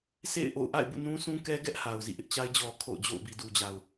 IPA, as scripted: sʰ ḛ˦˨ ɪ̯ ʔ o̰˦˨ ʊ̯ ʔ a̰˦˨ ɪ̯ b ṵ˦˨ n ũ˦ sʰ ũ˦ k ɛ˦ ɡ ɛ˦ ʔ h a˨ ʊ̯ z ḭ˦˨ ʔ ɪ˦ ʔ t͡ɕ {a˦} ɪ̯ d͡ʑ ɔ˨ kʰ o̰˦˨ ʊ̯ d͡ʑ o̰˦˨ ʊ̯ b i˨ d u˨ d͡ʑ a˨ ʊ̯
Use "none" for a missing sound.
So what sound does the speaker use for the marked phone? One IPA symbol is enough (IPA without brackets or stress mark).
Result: a˦